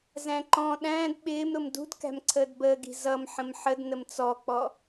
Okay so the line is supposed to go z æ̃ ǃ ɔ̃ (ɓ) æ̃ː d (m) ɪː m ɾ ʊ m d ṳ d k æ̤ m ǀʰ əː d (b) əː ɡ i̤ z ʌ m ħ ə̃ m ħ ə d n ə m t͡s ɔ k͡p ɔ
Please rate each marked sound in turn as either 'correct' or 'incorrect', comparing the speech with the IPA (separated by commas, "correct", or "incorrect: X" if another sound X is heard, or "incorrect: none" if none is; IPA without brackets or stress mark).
incorrect: ɗ, incorrect: ɓ, correct